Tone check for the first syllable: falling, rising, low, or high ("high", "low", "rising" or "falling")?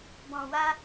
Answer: low